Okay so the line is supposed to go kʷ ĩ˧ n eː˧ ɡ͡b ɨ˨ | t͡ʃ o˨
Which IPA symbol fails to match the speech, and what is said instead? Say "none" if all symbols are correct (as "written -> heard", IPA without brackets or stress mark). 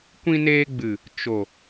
none